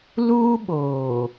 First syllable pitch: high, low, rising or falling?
high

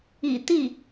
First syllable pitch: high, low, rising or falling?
low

